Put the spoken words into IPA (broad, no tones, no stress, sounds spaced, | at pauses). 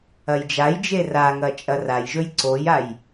ɐ j d͡ʒ a j d͡ʒ e r a ŋ ɐ t͡ʃʼ ɐ r a j ʒ ɵ j ǀ o j a j